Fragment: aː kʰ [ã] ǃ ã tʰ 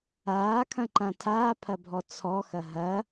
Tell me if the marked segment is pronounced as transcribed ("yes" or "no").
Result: no